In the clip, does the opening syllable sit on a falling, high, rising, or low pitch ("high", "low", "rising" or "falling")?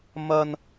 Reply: high